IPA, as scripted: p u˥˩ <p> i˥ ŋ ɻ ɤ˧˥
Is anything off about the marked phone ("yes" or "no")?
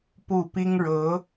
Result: no